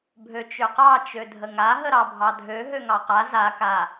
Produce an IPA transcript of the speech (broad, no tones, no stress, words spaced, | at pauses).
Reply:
bʱøt͡ʃøqɑ t͡ʃødʱəŋa ɦəɾɑbʱɑdʱø ɦøŋɑqa za ka